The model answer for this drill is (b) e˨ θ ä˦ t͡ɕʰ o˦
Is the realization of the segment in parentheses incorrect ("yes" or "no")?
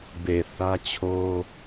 no